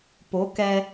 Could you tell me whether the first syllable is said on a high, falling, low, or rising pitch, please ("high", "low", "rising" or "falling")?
rising